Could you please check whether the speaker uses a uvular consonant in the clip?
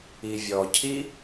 no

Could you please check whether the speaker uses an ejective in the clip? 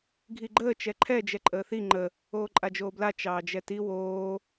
yes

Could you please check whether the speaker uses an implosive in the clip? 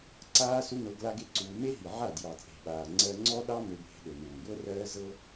yes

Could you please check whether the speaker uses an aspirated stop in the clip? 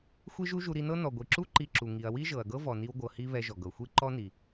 no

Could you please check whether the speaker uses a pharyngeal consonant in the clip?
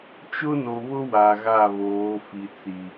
no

